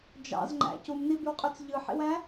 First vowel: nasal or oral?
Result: oral